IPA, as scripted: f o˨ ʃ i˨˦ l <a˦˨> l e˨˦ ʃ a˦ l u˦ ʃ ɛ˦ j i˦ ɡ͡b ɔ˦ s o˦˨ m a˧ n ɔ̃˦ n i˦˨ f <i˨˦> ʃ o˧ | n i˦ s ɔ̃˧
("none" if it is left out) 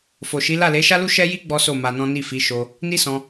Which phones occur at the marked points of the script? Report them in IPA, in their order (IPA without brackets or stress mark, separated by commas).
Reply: a˦˨, i˨˦